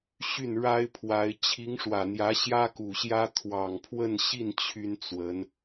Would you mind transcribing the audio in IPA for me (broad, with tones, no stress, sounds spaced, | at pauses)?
ɕ y˥˩ n ɻ a˥ ɪ̯ pʰ w a˧˥ ɪ̯ t͡ɕʰ i˧˥ ŋ ʂ w ä˨˩ n̪ j ä˧˥ ɕ j ä˥ k u˨˩ ɕ j ä˥ t̪ʰ w ɑ˨˩ ŋ pʰ w ə˥˧ n ɕ i˥˩ n t͡ɕʰ y˥ n t͡s w ə˧˥ n